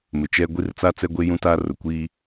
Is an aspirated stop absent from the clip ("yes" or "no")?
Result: yes